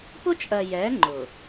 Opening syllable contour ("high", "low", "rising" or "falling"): high